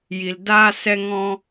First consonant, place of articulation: palatal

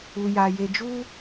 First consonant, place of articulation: palatal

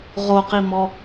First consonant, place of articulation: uvular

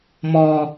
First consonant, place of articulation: labial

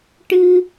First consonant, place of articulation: retroflex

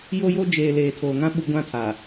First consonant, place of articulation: palatal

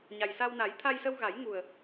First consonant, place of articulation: palatal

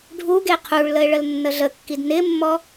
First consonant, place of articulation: retroflex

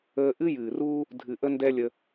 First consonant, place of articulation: glottal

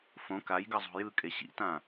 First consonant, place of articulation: labial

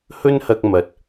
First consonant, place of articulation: glottal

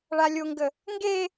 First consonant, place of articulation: retroflex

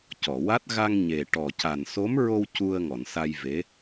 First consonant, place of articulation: palatal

